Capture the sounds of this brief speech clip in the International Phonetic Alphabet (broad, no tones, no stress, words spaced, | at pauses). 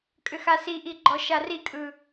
kʼʏxasiʔi ɡ͡ǃɔʃarikʼɯ